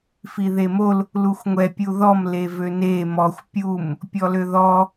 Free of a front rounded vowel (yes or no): no